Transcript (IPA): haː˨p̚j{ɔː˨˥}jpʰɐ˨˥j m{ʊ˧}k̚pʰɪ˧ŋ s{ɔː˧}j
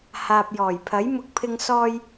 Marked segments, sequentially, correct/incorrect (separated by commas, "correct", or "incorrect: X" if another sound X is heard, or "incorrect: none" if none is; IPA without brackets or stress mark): incorrect: ɔː˨˩, correct, correct